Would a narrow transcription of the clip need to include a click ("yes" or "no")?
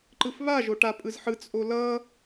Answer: yes